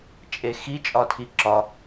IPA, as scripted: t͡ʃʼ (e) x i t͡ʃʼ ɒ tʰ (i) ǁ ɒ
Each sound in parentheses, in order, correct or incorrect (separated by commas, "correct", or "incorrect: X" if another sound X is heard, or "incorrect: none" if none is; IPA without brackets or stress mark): correct, correct